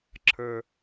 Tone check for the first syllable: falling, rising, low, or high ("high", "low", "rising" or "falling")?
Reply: low